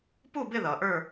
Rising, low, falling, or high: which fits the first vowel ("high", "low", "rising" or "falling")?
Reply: falling